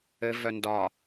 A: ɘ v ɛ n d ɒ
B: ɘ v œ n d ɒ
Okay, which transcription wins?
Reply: B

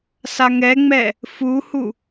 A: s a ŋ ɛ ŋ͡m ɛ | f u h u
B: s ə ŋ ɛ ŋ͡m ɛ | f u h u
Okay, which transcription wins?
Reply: A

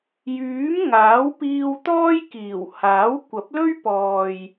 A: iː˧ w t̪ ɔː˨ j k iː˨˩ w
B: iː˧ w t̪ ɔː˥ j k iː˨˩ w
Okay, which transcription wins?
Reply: B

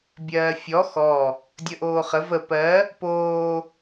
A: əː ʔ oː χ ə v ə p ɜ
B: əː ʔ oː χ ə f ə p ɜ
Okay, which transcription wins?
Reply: A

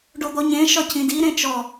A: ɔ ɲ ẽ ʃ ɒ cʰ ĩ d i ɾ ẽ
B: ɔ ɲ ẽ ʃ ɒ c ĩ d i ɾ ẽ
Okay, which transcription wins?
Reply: A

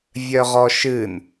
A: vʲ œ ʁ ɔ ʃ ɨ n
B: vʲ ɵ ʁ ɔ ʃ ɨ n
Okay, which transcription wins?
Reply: A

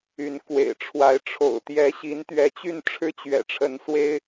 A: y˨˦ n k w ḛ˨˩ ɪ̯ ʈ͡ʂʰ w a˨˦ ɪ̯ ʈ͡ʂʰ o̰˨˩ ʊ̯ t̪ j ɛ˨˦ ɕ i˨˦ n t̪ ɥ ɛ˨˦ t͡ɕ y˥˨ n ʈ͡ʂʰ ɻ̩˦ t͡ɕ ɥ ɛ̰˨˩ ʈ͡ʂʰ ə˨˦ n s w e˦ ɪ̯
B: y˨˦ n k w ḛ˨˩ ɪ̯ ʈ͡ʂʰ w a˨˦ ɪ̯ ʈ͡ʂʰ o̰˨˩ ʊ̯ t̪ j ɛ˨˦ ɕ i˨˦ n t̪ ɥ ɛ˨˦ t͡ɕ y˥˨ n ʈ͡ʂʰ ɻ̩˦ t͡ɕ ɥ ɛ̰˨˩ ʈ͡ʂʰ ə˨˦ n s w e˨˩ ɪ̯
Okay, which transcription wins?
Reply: A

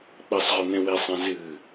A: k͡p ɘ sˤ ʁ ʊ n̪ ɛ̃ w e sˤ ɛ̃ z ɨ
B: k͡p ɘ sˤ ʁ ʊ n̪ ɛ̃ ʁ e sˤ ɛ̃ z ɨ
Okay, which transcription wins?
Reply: A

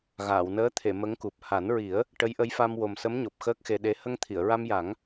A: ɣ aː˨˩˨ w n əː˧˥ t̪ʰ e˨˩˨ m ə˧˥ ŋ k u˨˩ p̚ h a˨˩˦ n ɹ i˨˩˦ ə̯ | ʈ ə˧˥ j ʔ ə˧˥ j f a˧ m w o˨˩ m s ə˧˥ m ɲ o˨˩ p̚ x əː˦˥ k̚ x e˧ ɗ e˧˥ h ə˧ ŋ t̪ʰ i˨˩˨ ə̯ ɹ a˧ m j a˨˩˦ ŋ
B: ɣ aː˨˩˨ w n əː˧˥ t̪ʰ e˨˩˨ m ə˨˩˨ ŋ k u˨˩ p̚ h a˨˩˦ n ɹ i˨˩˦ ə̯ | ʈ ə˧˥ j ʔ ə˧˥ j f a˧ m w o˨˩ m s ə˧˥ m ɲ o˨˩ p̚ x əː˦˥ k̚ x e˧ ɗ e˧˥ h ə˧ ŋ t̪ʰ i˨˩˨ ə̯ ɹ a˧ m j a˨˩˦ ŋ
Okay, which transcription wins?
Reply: A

